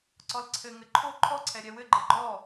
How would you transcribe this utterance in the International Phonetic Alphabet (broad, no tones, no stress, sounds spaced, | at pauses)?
ǀ ɔ l ǀʰ ɘ ŋ ɘ ǃʰ o ǃʰ ɔ ǀʰ ɛ ɾʲ ɛ w ɘ ɡ͡ǃ ɘ ɡ͡ǃ ɔ